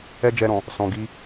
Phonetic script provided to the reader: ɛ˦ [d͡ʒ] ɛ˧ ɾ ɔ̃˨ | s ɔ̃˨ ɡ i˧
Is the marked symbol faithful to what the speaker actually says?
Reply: yes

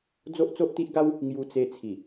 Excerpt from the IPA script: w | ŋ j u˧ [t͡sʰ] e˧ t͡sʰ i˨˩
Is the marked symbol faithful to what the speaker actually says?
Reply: no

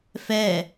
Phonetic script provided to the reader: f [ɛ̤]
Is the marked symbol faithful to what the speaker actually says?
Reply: no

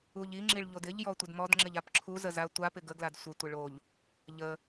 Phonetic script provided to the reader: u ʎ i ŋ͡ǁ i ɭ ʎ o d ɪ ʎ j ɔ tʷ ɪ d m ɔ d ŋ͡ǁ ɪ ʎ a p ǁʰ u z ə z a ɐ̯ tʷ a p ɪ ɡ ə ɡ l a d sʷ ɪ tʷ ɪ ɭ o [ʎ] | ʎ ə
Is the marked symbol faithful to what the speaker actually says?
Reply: yes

